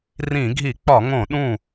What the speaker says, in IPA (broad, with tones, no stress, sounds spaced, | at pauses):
r ĩ˧˩˧ ɡʱ i˧˩˧ k͡p ɒ˧˩˧ ŋ õ˧˩˧ ɗ ũ˥˩